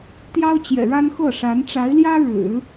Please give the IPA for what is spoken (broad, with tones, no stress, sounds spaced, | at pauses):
t̪ j ɑ˥ ʊ̯ t͡ɕ j ɛ̰˨˩ ɻ a˥ n x ɤ˥˩ ʂ a˧˥ n ʈ͡ʂ a˧˥ ɪ̯ l j ä˥ ɻ ɻ̩˨˩˦